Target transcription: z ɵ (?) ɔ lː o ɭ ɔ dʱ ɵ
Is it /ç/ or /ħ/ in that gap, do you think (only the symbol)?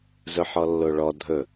ħ